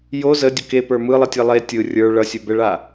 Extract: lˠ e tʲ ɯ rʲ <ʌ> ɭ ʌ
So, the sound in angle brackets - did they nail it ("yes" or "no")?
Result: no